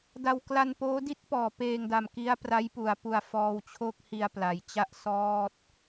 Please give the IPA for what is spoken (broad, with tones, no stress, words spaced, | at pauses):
da˧w kla˧npoː˦˥di˥˩t̚pɔː˩˦ peː˧ŋda˨˩m ki˦˥a̯pra˦˥jpu˩˦a̯pu˨˩a̯ fɔː˧wt͡ɕʰo˥˩k̚hi˧a̯ pla˩˦j t͡ɕa˥˩ʔsɔː˥˩t̚